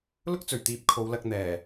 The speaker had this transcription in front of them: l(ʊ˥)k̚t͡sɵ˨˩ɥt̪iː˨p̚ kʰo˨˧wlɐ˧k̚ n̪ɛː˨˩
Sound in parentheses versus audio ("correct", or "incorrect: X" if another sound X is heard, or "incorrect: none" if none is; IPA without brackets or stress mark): correct